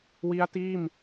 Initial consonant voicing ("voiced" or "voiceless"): voiced